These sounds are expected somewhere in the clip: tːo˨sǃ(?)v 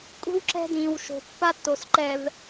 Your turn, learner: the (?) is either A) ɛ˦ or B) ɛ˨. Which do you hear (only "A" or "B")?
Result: B